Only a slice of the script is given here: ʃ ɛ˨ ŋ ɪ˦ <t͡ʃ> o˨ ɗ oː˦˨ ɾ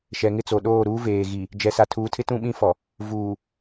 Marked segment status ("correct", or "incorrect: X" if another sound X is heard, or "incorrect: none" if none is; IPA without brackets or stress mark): incorrect: t͡s